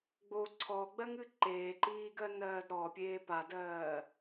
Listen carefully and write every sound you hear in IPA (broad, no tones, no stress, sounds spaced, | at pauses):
ɡ͡b o ǀʰ ɔ ɡ͡b ɜ ŋ ɨ ǃ eː ǃ iː ɡ ɜ n ɜː d ɾ ɔ pʲ eː p a d ɜː